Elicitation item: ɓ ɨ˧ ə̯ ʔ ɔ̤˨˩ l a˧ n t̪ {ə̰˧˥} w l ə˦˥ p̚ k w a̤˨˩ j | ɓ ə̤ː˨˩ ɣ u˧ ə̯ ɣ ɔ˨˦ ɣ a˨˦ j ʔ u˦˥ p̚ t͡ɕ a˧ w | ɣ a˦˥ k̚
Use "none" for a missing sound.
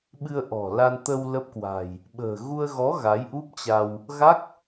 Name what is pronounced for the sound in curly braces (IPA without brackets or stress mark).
ə˧